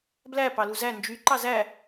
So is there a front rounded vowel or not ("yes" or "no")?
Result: yes